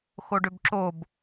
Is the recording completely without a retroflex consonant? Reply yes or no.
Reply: no